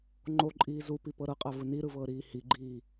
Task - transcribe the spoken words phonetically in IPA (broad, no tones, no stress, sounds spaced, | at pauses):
ŋ͡ǃ o ǃʼ iː z u p i p ɤ ɾ ɤ qʼ a v ɯ n i ɾ ɯ v ɤː ɾ iː h i ɡ͡ǃ iː